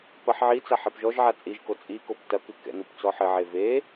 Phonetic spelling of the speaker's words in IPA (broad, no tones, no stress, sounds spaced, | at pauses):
p ɐ ħ ʕ i t͡s a ħ ɛ p ʒ ɔ ʒ ʕ a t͡sʼ i ʒ k o t͡sʼ i k o p t ɐ k ɨ k ɛ̰ n u p t͡s ɔ ħ ɘ ʕ e v e